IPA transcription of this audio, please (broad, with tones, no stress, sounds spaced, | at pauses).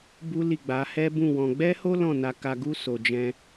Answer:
b u˦ l i˦˨ ɡ͡b a˨˦ h ɛ˦ b ũ˦˨ w ɔ̃˧ ɡ͡b ɛ˦ h o˦ l ɔ̃˦˨ n a˧ k a˧ ɡ u˦ s o˧ d͡ʒ ɛ̃˦